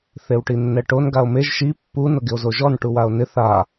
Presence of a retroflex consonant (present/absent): present